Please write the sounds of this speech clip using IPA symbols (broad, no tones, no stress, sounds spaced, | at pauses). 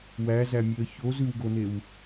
w æ z æ mʲ e ə̯ ç o z ʉ w ɡ o n e w